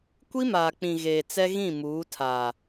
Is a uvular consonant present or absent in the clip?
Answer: absent